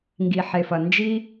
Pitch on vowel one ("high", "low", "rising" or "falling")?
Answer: low